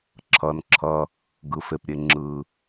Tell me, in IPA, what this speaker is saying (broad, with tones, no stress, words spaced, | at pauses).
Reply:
ǁʰʌː˩nǁʰʌ˩ | ɡɯ˩fe˩pɾʲe˩ ŋ͡ǁɯ˩